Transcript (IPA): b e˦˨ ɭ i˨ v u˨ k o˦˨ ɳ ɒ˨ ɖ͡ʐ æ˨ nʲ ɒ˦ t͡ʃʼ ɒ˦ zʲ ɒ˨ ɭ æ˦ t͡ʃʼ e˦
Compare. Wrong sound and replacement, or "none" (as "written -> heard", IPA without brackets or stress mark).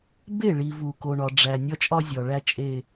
o˦˨ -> o˨